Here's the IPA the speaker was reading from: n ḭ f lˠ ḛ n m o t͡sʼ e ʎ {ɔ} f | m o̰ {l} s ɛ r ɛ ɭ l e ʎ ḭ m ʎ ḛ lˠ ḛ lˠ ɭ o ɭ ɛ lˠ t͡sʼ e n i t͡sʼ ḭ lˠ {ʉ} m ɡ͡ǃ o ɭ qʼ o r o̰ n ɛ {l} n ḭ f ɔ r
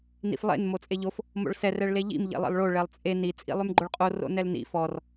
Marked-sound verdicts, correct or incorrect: incorrect: o, incorrect: ɭ, correct, correct

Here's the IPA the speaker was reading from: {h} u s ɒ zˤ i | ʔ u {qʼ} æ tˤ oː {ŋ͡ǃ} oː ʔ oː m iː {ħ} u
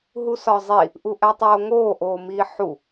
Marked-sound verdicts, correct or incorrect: incorrect: ɦ, incorrect: ʔ, incorrect: ŋ, correct

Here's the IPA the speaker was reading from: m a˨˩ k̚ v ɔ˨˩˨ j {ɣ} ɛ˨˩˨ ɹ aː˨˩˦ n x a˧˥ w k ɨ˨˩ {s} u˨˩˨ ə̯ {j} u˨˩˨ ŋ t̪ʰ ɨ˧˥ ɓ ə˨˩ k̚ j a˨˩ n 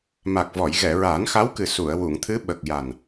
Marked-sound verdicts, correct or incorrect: correct, correct, incorrect: w

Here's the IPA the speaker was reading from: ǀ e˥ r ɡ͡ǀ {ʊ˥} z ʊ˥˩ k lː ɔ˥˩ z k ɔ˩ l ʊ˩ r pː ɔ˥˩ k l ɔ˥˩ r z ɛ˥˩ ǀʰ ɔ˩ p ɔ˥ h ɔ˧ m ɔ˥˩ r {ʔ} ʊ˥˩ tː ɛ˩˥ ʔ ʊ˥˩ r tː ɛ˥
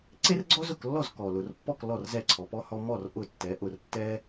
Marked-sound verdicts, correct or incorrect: incorrect: ɔ˥, correct

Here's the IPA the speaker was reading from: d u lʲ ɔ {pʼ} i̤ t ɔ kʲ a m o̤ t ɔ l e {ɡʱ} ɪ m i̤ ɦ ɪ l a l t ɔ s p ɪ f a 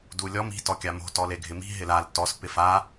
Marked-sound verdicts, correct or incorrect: incorrect: m, correct

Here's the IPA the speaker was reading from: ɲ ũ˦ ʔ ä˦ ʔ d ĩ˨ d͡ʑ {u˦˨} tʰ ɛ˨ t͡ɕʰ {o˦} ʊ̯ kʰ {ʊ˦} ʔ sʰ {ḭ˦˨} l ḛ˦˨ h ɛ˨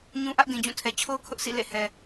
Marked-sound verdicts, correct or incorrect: incorrect: ũ˦˨, correct, correct, correct

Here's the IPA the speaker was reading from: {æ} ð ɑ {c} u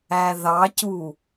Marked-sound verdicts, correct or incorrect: correct, correct

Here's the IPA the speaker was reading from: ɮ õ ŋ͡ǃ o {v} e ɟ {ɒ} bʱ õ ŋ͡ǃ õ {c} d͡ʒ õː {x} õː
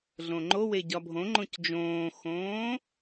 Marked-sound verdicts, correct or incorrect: incorrect: w, correct, correct, correct

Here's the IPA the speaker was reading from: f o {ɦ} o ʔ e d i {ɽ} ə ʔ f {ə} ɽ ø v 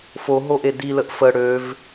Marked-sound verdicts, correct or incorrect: correct, incorrect: l, correct

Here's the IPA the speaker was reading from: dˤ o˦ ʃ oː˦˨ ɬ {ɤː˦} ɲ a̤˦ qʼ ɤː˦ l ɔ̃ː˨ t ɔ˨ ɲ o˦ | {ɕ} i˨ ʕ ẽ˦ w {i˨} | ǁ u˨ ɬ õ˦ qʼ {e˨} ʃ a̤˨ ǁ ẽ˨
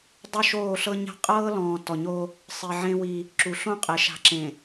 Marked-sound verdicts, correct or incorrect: incorrect: ɤ˦, incorrect: sˤ, incorrect: i˦, correct

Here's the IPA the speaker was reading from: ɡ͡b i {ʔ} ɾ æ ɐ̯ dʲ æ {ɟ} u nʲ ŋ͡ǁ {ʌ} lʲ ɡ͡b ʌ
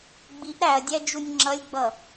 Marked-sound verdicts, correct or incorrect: correct, incorrect: d͡ʒ, correct

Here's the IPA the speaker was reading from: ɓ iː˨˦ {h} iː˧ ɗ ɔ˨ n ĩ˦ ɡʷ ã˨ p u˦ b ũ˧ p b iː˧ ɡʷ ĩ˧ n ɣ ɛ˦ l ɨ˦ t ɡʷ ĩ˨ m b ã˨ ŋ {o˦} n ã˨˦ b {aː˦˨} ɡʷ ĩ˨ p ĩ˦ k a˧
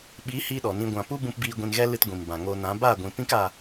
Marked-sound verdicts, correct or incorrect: correct, incorrect: o˧, correct

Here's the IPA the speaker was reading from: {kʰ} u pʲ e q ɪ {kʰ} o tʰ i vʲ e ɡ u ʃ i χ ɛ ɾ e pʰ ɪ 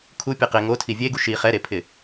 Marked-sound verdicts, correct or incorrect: correct, incorrect: ŋ

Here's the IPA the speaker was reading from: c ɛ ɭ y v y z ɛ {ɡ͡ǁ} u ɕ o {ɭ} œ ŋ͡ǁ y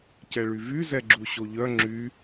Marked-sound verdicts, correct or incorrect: correct, incorrect: ʎ

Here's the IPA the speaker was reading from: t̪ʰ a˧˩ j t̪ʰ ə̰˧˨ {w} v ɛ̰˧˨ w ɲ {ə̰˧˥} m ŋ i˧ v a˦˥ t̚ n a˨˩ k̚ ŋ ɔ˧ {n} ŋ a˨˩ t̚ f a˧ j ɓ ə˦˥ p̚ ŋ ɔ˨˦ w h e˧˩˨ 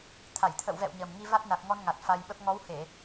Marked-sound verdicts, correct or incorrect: correct, incorrect: ə˨˩, correct

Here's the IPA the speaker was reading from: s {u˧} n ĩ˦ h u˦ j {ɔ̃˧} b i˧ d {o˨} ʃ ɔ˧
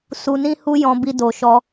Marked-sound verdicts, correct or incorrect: correct, correct, correct

